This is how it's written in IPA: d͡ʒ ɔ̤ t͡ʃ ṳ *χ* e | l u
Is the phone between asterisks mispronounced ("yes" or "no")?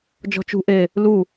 yes